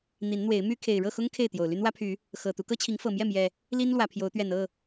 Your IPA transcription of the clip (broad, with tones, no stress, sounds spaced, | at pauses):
n̪ i˨˦ n n̪ w e˨˦ ɪ̯ m y˦ kʰ e˨˩ ɪ̯ ɻ ɤ˥˨ x ʊ˦ ŋ kʰ e˥˨ ɪ̯ t̪ j o˨˩ ʊ̯ l y˦ n w ä˦ pʰ y˨˦ | x ɤ˨˩ t̪ u˦ k ɤ˦ t͡ɕʰ i˨˦ ŋ f ɤ˨˩ m j ɛ˥˨ m j ɛ˨˩ | l i˦ n l w ä˨˩ pʰ j o˨˦ ʊ̯ t̪ ɥ ɛ˨˩ n ɤ˥˨